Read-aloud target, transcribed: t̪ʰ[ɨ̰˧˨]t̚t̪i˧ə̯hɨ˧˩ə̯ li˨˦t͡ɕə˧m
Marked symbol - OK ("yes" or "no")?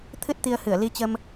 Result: no